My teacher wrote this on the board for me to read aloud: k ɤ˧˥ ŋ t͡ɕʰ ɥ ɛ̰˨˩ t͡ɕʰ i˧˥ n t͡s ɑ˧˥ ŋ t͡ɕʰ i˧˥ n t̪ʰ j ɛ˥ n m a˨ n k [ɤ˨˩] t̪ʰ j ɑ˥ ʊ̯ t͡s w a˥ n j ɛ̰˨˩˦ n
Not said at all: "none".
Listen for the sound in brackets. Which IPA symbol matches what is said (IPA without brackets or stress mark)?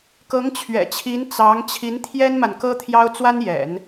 ɤ˥